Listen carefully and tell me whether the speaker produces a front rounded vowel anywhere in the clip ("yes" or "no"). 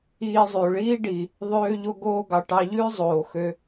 yes